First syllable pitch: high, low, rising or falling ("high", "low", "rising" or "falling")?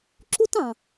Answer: high